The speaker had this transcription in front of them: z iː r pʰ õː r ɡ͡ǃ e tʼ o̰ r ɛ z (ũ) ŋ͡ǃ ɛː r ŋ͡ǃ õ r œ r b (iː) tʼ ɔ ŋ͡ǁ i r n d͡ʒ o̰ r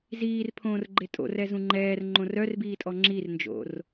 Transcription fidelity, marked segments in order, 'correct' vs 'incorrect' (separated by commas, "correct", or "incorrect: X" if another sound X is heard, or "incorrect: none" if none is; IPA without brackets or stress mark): correct, correct